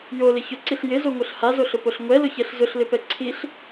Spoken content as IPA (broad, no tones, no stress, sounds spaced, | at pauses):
j o l ɪ ç ʊ ǀ i ɬ j ɪ z o ŋʷ œ ɬ h a z o ɬ ʊ p o ɬ ŋʷ ɛ l ʊ ç ɛ ɬ z ʊ ɬ l ɪ p ɛ ǀʰ i ɬ